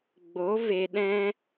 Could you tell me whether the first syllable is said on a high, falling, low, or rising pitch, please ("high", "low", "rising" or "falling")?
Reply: rising